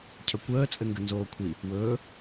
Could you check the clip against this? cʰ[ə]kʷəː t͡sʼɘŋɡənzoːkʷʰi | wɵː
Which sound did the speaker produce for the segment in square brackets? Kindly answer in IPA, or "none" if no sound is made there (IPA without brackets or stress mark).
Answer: ə